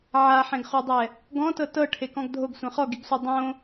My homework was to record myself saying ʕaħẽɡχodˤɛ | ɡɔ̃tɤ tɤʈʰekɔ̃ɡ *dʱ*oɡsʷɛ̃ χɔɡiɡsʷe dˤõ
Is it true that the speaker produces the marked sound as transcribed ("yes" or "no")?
yes